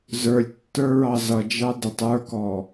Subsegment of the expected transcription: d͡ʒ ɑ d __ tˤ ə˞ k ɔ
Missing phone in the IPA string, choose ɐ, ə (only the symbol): ə